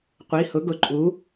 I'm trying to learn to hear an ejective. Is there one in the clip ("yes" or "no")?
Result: yes